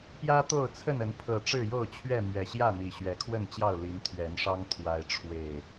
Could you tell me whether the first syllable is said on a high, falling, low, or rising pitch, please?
high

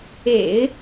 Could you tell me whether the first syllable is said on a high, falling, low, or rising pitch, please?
low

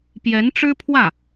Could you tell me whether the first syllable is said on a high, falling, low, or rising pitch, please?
rising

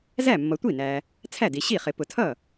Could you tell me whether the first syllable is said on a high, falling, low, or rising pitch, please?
falling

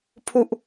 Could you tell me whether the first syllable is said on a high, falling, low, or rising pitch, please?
low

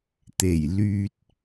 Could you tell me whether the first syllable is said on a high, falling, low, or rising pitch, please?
low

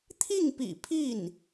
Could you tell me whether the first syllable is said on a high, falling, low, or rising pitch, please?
falling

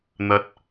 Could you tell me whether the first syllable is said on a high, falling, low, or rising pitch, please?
low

